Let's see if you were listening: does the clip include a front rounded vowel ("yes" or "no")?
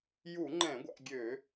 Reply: yes